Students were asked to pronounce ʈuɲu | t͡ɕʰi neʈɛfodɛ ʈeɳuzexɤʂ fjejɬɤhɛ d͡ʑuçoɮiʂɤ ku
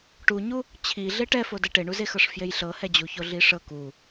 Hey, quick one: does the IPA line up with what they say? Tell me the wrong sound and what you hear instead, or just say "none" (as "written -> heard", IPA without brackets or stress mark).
n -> ɮ